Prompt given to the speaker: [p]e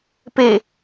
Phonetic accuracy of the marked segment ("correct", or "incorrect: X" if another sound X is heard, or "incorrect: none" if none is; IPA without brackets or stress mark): correct